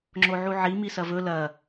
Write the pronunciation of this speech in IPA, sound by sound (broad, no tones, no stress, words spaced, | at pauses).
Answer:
ŋ͡ǁoʕuʕi misɐvɵ lɐ